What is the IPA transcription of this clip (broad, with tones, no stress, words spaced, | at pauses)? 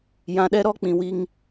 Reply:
jã˨ɗɛ˦ɾɔ˦ k͡pĩ˨wi˦ŋ